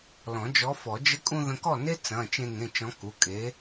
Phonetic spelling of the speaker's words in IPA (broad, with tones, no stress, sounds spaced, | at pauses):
l ɔ̃˨˩˦ d͡ʒ ɔ˨˥ f ɔ˨˩˦ d͡ʒ ə˨˥ kʼ ũ˧ ð ə̃˧ k ɔ˥˩ n e˥ t͡s ɐ̃˩˧˩ t͡ʃ ẽ˧ ŋ ẽ˩˧˩ t͡ʃ ɔ̃˨˥ k u˩˧˩ kʼ e˨˥